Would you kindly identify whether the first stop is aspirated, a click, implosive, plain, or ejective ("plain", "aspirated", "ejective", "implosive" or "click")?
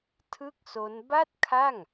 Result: aspirated